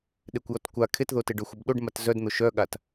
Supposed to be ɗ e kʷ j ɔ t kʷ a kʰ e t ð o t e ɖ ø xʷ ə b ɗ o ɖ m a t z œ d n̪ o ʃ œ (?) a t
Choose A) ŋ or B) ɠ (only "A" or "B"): B